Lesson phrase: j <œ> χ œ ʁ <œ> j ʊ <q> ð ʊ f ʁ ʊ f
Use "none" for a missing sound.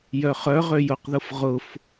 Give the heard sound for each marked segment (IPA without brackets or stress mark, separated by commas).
œ, ø, q